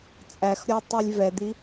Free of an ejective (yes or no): no